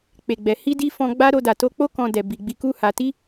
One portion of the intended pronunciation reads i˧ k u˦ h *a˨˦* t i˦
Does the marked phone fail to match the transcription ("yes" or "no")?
yes